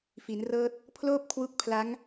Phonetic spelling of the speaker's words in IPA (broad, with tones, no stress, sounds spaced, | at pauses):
f i˩˦ n r ɤː˦˥ t̚ | pʰ l oː˥˩ p̚ kʰ w u˦˥ k̚ pʰ l a˦˥ ŋ